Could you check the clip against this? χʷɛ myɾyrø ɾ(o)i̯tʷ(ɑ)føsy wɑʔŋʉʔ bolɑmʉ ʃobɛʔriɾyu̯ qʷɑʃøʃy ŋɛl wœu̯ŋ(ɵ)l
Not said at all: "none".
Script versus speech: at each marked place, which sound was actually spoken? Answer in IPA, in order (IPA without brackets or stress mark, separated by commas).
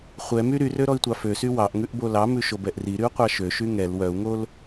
ɔ, ɑ, o